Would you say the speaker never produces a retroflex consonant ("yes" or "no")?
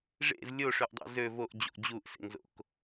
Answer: no